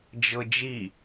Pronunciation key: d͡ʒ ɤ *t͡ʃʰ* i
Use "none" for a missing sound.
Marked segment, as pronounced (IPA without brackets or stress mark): d͡ʒ